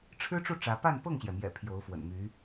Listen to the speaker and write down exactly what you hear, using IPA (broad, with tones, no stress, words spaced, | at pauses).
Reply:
ʈ͡ʂʰɻ̩˥ʈ͡ʂu˥˩ ʈ͡ʂä˧˥ pa˥˧npɤ˥˩ŋɕjɛ˩mjɛ̰˨˩ pʰjo˧˥ʊ̯fwə̰˨˩nmy˧˥